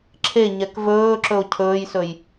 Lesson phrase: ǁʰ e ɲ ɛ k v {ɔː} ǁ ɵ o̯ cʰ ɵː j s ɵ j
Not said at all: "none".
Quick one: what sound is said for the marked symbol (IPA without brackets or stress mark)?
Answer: ɵː